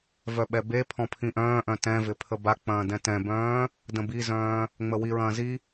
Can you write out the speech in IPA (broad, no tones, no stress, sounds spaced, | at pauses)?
v œ ɓ ɛ b e pʰ ɔ̃ pʰ ĩ ʔ œ̃ː ʔ œ̃ t ɛ̃ v ɪ pʰ ə b a k͡p ɐ̃ː d ɛ̃ t ɛ̃ b œ̃ː | d ə̃ b i z œ̃ː | ŋ͡m ə w i ɹ ɐ̃ː z i